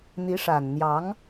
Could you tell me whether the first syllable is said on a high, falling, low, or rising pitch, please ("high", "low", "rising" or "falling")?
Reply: rising